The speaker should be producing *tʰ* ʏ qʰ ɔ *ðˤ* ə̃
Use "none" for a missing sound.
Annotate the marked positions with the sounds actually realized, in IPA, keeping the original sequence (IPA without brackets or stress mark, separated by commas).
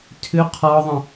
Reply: tʰ, ðˤ